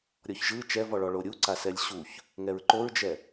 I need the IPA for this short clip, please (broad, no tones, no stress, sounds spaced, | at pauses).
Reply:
ɾʲ ɔ ç ʒ ɯ t͡ʃ ɛ v ɔ ɭ ɔ ɭ o ɾʲ u ǀ a s ɛ lʲ ɕ u ç | ŋ ɛ ɹ ǃ o ɹ d͡ʒ ɛ